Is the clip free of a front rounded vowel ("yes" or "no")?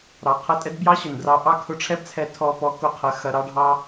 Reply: yes